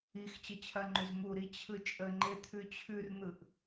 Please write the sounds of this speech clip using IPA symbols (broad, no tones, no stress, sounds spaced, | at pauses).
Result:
i x t͡ɕ ə t͡ɕʰ ɐ ŋ͡ǃ ʉ z m u ɾ i t͡ɕʰ ɯ t͡ʃʼ ə ŋ͡ǃ e t̪ʰ ʉ t͡ɕʰ ʉ r n̪ ɯ ʔ